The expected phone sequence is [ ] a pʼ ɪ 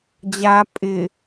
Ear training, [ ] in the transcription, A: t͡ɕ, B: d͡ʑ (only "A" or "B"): B